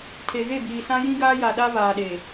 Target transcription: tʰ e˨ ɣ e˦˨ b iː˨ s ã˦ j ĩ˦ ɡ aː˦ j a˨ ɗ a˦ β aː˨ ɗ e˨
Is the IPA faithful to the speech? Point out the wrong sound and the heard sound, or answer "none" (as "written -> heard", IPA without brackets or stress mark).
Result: none